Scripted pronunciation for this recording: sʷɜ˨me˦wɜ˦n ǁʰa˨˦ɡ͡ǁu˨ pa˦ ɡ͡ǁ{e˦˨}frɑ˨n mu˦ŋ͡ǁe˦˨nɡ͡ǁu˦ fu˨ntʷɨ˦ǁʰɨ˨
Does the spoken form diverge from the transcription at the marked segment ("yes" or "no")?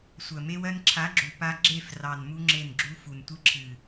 no